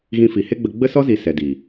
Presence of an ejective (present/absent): absent